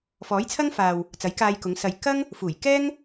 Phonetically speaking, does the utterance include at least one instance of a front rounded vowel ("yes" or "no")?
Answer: no